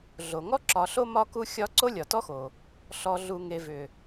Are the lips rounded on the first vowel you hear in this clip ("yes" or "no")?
yes